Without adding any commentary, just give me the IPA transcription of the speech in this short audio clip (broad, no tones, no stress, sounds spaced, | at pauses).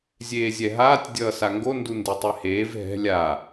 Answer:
zʲ eː zʲ ɛ ɦ aː tʲ dʲ ʌː s a ŋ ɡ o n d u n d e tˤ e h eː v ɦ ɛ̤ lʲ a